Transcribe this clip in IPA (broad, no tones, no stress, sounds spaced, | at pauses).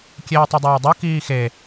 kʲ eː tˤ ɯ dˤ eː dˤ u k iː x e